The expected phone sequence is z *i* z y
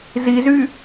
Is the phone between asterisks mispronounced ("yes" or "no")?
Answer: no